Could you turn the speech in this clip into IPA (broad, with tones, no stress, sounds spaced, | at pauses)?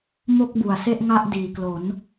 m o˥˩ k̚ b u˩˦ a̯ s e˥˩ ʔ ŋ a˥˩ ʔ d iː˨˩ k l o˩˦ n